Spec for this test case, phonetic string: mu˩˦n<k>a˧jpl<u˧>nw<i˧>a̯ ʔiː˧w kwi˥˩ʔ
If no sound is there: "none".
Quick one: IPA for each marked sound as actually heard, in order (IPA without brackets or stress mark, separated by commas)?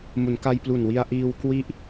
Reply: k, u˨˩, i˧